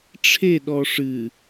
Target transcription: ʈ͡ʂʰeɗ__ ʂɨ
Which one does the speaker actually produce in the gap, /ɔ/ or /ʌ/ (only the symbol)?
ɔ